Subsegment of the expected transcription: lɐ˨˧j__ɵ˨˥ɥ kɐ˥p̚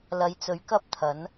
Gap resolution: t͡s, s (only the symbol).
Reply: t͡s